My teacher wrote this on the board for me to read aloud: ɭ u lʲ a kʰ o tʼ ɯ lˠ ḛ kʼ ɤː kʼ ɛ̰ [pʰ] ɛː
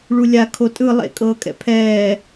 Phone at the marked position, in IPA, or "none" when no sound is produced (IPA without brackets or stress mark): pʰ